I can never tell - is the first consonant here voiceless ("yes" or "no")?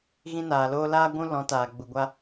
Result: no